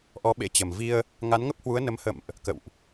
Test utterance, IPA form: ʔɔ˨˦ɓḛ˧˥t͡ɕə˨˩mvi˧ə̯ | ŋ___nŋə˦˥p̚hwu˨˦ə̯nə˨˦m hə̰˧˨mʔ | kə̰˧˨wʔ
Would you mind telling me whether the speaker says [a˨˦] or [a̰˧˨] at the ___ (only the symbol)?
a˨˦